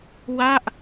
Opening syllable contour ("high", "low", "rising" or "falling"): falling